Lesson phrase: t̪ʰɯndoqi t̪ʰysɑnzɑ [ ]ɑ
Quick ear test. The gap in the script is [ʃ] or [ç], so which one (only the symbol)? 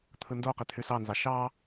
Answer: ʃ